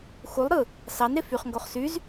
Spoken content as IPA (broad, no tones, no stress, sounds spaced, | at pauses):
x u lˠ ɾ ɯ | s ɑ n ɾ e f y χ ŋ ɡ o χ s y z